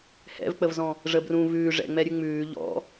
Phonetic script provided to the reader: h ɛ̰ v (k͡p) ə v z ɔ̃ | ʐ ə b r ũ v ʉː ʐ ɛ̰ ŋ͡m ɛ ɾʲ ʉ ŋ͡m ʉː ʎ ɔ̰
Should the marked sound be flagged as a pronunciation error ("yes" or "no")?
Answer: no